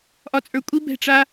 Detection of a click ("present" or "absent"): absent